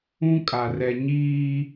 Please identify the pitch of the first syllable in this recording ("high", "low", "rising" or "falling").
high